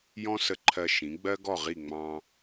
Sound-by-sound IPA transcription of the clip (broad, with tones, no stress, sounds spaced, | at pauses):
j ɔ̃˥ s ə˧ ǃʰ ɜ˧ ʃ ĩ˩˥ ɡ͡b ɜ˥ ɡ ɔ˥˩ ʁ i˥˩ ŋ͡m ɑ̃˧